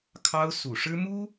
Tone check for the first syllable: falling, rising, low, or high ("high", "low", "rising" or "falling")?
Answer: high